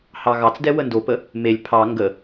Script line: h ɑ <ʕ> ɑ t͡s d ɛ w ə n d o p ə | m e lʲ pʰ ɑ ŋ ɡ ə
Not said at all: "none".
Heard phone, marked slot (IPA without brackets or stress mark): ɣ